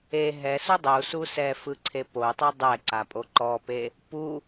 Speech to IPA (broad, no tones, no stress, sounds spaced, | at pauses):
e ɦ ɛ s u dˤ u s u s ɛ f ɯ ǀʰ e p o tˤ o dˤ ɛ ǀ a pʼ o ǃ ɔ p e | p u